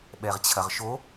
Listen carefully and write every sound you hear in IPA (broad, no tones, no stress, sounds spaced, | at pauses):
ɓ ɛ ʁ t͡ɕʰ ɐ ʁ ʃ o